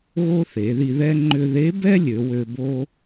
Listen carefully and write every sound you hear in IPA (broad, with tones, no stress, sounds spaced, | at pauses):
ɣ o˥ θ e˩˧ ð i˧ ð ɛ˥ ŋ͡ǃ ʏ˧ ð e˧˥ b ɛ˥ lʲ ø˩˧ w ø˧ b o˥